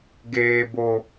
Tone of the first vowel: high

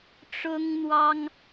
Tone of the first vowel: high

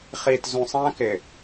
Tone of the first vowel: low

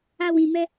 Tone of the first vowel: high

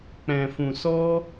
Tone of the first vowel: low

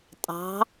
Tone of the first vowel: rising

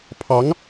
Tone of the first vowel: rising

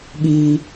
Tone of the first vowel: low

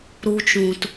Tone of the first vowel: high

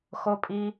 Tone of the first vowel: low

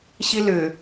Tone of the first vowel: high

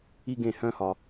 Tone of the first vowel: high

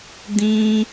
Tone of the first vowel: high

